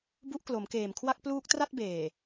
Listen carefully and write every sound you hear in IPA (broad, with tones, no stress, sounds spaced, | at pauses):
b u˦˥ ʔ k l o˩˦ m k eː˨˩ m kʰ w a˥˩ k̚ p l uː˦˥ k̚ t r a˥˩ t̚ b eː˨˩